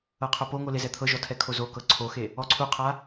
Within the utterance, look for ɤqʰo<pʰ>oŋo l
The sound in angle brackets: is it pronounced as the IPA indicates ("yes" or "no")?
no